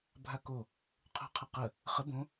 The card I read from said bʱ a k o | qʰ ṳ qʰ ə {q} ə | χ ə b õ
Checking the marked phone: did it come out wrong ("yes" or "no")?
no